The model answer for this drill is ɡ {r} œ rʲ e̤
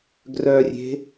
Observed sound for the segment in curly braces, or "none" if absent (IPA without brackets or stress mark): r